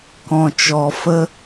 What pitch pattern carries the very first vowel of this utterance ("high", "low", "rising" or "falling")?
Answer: low